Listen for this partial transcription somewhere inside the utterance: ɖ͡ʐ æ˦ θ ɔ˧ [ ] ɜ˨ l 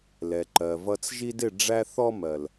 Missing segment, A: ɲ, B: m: B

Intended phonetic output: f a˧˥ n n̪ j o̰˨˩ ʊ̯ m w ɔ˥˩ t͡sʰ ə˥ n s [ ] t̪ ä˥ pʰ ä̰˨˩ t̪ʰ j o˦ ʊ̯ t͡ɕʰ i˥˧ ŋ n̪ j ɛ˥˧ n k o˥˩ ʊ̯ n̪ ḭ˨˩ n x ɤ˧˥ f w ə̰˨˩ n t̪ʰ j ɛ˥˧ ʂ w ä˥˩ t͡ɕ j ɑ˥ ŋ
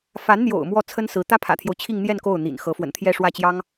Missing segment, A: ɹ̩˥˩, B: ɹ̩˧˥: B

